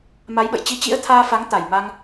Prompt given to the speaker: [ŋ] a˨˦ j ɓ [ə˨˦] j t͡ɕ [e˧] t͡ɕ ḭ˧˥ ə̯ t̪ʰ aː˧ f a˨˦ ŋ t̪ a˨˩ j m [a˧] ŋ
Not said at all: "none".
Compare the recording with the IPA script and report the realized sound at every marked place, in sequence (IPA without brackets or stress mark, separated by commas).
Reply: m, ə̰˧˨, i˧, a˧